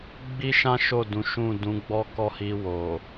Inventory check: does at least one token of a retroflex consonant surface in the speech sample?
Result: no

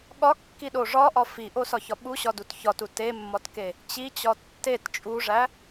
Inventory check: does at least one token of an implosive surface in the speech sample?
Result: yes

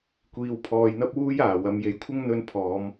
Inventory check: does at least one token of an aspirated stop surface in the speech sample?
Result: yes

